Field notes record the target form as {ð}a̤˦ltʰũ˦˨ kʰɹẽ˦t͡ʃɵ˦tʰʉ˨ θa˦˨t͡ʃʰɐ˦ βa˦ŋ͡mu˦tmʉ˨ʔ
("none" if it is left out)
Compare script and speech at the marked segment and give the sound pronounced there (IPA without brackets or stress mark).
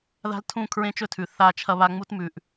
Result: ð